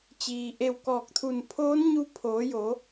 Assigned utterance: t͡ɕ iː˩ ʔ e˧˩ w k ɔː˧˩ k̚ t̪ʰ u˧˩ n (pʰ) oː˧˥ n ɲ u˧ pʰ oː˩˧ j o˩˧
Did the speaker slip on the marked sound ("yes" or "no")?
no